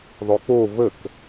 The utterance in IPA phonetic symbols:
ðˤ o k͡p o v ə k

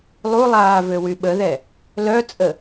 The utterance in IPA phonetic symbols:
lˠ u lˠ aː v ø w y ɓ ə ð ɛ | l œ t͡sʼ ə

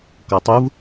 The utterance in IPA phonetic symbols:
k ɔ tˤ u v

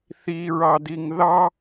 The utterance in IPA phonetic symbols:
θ i ɹ ɑ d i ŋ ð ɑ

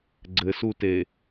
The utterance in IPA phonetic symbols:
ɡ͡ǀ ɘ s u t e

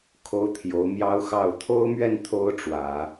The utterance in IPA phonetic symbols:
kʰ o˥ ʊ̯ t̪ʰ j o˧˥ ʊ̯ m j ɑ˥ ʊ̯ x ɑ˥˩ ʊ̯ t̪ʰ o˥ ʊ̯ m ɥ ɛ˥˩ n t̪ʰ o˥ ʊ̯ ʈ͡ʂ w ä˨˩˦

